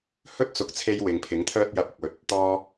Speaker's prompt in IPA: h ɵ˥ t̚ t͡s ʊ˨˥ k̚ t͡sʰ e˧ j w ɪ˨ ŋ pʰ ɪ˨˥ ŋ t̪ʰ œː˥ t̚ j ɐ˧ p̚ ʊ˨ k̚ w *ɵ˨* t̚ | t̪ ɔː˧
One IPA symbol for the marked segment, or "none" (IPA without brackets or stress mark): ɵ˨˥